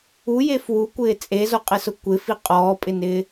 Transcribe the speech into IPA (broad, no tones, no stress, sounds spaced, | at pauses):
u j e f w u kʷ ɪː t͡sʼ e z o qʼ ɪ s ʊ kʷ ɪ f i qʼ ɔː pʼ ɪ n ɪː